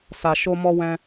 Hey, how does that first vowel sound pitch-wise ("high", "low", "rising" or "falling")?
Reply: low